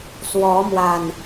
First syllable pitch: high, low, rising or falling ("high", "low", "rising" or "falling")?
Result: rising